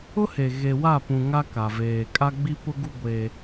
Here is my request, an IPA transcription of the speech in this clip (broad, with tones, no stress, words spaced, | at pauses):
ʊ˦he˨ ɣe˨wa˦˨pũ˨ ŋa˦ka˨veː˨ kʼa˦ɡ͡bi˦pʊ˦ɡu˦ ɡʷe˦